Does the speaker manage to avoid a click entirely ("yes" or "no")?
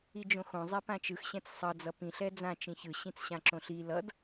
no